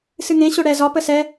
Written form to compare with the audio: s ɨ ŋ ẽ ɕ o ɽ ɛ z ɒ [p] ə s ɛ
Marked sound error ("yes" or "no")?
no